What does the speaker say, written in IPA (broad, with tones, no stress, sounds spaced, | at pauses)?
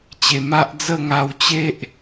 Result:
t͡ɕ e˨˩ m a˦ ʔ d͡z ə˥˧ ŋ a˧ w t͡ɕ e˦ ʔ